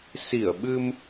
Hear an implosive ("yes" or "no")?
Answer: yes